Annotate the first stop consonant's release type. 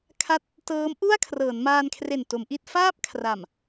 aspirated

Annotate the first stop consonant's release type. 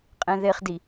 ejective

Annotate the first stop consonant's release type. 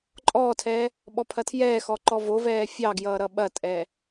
click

